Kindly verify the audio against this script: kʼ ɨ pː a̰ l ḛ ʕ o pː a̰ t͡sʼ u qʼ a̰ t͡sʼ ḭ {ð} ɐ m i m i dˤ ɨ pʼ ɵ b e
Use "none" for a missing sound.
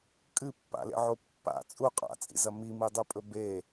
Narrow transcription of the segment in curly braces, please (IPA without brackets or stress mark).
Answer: z